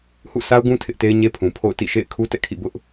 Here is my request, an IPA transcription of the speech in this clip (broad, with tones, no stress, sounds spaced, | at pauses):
h ṵ˦˨ s a˦ ʊ̯ ɡ ũ˦ tʰ ɪ˦ ʔ t e˦ ɪ̯ ɲ e˦ pʰ ũ˨ pʰ o̰˦˨ ʊ̯ t ḭ˦˨ ʃ ḛ˦˨ ɪ̯ kʰ u˦ t ɛ̰˦˨ kʰ ḭ˦˨ b ʊ˦ ʔ